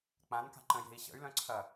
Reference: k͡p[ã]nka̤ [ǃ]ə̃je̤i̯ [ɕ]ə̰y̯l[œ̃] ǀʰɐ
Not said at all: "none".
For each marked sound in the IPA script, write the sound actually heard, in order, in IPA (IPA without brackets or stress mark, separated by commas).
ã, ǃ, ɕ, œ̃